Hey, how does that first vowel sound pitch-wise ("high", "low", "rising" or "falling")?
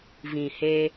low